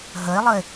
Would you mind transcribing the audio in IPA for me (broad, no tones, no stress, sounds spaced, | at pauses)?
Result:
ɦ ə e̯ lˠ ə e̯